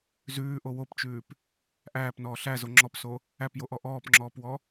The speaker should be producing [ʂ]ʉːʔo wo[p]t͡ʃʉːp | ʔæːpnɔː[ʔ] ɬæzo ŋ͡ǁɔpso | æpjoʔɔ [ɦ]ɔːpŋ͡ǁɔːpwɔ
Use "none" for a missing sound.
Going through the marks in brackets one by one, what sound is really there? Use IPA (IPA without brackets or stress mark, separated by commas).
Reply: z, p, none, ʔ